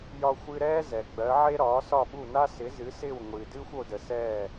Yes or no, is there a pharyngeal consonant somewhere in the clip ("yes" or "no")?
yes